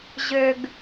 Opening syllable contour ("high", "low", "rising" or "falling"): low